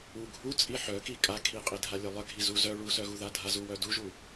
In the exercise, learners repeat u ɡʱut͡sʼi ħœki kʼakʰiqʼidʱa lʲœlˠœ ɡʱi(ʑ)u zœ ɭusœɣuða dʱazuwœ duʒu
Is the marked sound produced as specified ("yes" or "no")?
no